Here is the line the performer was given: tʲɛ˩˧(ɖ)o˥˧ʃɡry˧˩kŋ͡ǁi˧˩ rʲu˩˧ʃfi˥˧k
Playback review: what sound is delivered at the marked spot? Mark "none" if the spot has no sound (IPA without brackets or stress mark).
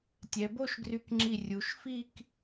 b